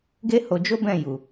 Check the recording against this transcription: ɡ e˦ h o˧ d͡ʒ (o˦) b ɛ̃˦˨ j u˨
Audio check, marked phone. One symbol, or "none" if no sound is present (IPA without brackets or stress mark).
o˦